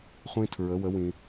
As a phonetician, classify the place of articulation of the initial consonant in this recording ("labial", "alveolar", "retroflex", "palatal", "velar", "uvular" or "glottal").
uvular